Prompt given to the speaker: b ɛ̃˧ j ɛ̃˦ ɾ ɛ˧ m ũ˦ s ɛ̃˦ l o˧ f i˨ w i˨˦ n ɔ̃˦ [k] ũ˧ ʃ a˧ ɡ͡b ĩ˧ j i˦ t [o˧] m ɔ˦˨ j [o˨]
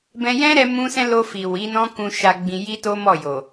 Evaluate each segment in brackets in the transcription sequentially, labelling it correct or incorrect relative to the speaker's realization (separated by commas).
correct, incorrect, correct